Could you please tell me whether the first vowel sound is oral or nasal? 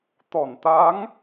oral